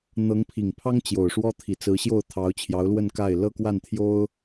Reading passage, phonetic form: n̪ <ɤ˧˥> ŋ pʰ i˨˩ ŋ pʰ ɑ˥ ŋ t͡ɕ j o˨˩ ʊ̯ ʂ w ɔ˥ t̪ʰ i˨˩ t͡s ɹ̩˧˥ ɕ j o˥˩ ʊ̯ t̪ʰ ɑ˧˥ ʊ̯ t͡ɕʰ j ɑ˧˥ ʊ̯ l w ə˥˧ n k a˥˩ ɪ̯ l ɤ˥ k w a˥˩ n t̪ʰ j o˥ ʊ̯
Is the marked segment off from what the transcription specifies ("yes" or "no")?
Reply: no